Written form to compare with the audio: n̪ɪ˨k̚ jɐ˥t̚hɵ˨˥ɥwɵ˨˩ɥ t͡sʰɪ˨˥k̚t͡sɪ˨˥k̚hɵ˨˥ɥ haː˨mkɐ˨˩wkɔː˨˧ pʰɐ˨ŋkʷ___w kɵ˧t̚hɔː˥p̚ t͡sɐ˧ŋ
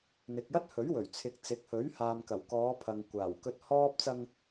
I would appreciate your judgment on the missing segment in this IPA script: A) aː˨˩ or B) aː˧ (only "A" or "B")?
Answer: A